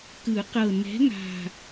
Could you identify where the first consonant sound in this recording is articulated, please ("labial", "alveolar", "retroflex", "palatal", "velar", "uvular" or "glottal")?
velar